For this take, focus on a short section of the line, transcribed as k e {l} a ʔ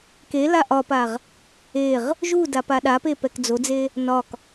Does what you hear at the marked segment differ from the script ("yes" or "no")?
no